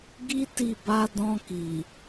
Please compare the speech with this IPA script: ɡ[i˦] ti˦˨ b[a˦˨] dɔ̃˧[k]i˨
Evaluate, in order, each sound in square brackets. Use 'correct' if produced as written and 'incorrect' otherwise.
correct, incorrect, correct

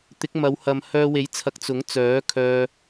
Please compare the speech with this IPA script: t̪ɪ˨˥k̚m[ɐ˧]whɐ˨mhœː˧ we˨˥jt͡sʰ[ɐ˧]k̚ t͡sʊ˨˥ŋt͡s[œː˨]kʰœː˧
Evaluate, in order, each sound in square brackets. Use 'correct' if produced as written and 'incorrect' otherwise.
incorrect, incorrect, incorrect

